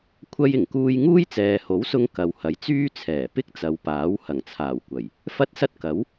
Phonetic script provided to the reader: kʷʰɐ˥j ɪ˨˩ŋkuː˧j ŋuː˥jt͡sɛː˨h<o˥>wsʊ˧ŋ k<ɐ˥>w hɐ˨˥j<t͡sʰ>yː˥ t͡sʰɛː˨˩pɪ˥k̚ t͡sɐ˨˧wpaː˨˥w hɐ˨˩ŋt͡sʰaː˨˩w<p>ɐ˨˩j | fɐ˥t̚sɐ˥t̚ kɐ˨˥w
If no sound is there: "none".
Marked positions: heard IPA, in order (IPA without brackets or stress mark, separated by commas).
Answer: o˨˥, ɐ˨, t͡s, kʷ